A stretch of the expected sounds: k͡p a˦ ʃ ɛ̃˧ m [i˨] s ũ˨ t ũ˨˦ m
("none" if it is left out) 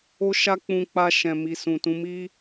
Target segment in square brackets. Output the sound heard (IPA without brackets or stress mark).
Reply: i˨